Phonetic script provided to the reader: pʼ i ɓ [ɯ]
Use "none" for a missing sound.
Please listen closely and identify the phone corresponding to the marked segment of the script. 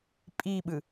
ɯ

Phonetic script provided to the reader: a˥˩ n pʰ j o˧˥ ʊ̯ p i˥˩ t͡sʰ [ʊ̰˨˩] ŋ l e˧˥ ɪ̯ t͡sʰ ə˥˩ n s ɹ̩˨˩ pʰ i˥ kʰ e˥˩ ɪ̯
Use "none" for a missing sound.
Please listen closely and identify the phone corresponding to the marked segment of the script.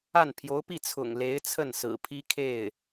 ʊ̰˨˩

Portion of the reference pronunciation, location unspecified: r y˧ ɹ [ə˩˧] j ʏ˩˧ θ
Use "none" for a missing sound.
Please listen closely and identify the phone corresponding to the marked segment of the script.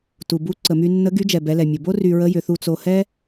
ə˧˥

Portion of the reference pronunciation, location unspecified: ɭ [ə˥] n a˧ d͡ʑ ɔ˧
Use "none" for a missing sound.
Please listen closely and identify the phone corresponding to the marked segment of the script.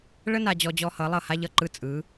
ə˥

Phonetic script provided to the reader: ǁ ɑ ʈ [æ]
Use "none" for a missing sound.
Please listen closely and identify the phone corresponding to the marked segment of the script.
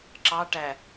æ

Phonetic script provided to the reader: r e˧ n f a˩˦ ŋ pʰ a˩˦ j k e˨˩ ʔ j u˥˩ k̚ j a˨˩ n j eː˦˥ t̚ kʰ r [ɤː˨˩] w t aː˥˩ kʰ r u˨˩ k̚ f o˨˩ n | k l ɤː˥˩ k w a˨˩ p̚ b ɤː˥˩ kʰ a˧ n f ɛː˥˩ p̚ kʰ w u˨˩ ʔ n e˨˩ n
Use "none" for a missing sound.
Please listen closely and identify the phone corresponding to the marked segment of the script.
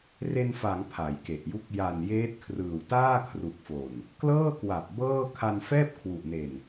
ɯː˨˩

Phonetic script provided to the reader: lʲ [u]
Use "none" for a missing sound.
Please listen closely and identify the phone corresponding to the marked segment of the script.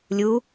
u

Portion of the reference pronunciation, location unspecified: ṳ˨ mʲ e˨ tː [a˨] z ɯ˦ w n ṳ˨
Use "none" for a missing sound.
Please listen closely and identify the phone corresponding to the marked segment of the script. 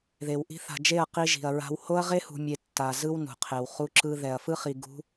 a˨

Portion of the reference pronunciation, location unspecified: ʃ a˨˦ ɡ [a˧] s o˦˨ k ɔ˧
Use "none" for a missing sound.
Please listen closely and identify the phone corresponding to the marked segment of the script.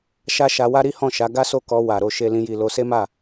a˦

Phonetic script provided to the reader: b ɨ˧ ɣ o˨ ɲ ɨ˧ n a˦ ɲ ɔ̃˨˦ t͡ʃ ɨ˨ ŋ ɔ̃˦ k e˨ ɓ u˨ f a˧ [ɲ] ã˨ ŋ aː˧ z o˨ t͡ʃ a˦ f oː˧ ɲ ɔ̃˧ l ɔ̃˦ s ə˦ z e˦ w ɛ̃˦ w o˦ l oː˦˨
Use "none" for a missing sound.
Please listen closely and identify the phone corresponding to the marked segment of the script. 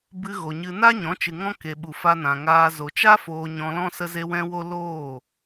n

